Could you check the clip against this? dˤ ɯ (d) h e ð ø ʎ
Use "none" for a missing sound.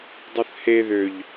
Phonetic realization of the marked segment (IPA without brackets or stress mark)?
θ